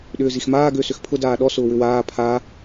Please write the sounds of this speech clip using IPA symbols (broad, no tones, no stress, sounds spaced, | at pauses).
ɗ ʏː z i x m aː ɡ ʏː s ʏ x pʰ ʊ d aː ɗ ɔ s ʊː w ʏ w aː pʰ a